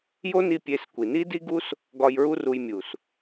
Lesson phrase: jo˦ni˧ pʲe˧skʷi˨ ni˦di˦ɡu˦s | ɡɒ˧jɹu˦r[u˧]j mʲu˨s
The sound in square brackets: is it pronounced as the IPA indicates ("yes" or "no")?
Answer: yes